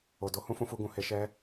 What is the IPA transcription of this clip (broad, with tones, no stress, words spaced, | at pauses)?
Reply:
o˨do˧ hũ˦fũ˧fu˧ɡũ˨ he˧ʃɛ˦